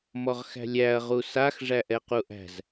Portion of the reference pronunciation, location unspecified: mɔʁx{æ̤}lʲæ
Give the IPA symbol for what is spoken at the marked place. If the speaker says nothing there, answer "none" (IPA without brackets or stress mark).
æ̤